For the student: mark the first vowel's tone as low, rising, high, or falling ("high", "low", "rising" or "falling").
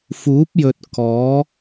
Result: rising